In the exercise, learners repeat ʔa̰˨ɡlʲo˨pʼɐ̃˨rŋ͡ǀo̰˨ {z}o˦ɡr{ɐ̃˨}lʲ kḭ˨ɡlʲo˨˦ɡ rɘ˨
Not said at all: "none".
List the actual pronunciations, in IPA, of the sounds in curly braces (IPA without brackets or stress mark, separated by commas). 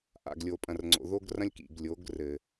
ð, ɐ̃˦